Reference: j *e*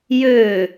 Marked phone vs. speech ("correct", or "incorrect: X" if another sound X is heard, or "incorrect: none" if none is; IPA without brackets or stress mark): incorrect: ø